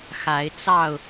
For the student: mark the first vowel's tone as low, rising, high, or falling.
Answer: rising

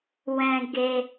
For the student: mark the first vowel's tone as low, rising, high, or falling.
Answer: high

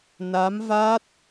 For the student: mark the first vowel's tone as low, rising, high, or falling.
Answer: rising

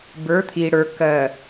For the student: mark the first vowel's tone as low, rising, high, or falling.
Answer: rising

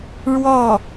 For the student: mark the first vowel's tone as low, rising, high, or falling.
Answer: falling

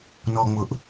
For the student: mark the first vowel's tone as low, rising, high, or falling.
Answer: low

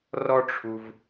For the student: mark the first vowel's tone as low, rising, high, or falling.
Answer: high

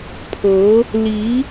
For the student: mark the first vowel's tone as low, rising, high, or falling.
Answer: rising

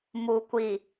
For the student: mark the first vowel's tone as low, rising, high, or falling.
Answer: low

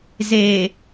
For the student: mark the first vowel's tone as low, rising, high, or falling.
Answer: low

